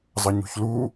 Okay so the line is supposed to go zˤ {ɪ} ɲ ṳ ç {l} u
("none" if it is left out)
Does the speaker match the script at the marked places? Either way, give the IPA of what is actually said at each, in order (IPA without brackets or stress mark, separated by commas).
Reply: ə, l